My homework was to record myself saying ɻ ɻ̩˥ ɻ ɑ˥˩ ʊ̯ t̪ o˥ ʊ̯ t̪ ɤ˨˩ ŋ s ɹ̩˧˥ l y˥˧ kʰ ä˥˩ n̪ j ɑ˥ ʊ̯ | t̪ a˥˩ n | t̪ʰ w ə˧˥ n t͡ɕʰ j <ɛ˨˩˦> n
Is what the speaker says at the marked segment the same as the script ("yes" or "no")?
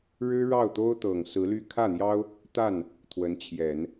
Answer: yes